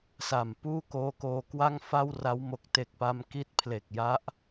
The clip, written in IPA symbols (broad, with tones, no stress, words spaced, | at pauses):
sa˨˩m puː˥˩koː˦˥koː˧ kwa˥˩ŋfa˥˩wra˦˥w mo˨˩k̚te˨˩k̚pa˧m ki˦˥t̚ pʰle˨˩k̚ja˦˥ʔ